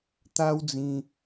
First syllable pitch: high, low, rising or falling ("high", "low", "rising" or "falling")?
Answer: high